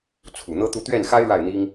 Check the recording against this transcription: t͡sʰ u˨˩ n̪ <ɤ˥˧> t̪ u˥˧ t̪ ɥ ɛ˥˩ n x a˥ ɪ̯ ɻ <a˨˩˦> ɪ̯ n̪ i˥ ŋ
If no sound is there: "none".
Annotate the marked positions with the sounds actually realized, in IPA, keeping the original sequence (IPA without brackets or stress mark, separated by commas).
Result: ɤ˥, a˥˩